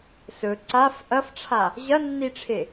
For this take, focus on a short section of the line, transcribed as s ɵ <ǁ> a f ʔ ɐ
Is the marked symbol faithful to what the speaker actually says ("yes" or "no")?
no